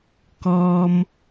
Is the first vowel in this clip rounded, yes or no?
yes